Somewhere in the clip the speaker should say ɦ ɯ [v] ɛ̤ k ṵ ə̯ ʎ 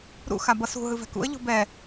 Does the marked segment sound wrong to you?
no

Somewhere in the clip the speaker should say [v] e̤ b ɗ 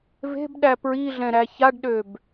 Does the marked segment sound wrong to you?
no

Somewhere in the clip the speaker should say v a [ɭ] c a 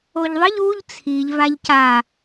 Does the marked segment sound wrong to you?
yes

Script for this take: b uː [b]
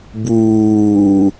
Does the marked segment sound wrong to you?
yes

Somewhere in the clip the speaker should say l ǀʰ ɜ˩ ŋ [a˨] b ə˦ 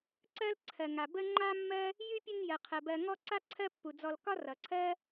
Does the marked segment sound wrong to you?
yes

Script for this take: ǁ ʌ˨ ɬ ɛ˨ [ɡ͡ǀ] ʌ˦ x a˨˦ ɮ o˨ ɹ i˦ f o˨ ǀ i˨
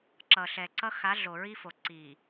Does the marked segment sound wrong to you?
yes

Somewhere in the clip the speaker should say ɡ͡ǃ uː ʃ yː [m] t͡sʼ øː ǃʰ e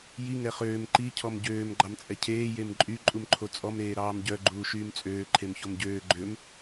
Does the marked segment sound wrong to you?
no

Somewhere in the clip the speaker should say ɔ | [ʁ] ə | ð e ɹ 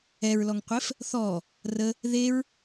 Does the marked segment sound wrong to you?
yes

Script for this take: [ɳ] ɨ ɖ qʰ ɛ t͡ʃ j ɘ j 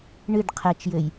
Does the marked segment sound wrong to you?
no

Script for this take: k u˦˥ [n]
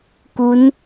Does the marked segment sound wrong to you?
no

